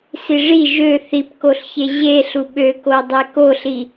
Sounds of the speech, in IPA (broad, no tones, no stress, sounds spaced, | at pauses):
s i ʐ i ʒ ø θ i p k o ɬ ç e ʑ e ɬ u ɓ ø k o dˤ e k o ɬ i